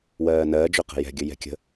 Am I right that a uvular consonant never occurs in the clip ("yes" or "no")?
no